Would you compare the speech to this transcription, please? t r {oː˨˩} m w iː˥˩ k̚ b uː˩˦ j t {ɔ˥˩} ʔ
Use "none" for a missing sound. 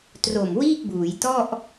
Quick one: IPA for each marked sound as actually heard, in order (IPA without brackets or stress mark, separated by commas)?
o˨˩, ɔ˥˩